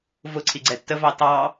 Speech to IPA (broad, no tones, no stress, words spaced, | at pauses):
vʊǀʰi ɡ͡ǀɛtːəvɑ tɑ